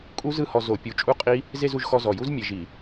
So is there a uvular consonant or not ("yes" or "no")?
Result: yes